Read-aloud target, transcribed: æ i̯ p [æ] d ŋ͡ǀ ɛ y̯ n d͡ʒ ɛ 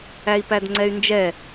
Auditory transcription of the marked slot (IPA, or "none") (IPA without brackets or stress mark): æ